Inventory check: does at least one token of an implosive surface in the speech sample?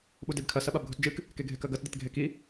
yes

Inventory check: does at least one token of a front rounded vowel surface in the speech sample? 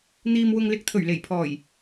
no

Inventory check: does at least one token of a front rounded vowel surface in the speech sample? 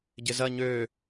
yes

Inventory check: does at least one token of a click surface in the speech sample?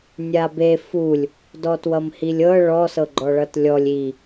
yes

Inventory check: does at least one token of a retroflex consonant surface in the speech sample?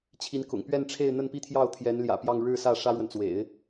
yes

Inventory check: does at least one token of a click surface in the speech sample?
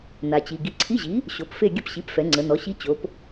yes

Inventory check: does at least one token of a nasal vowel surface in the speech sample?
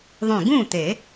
yes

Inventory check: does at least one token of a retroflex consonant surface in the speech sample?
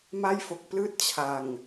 no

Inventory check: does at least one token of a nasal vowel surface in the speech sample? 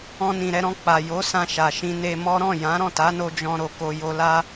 yes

